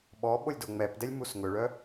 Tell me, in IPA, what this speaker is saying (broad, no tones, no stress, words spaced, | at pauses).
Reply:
ɓɔ ɓolʲdoŋ͡mɛpdɛlʲ musŋɵɭœ